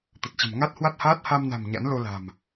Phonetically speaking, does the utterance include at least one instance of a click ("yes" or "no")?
no